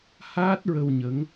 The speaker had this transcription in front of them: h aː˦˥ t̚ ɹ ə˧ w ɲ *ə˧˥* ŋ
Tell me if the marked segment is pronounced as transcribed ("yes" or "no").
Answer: yes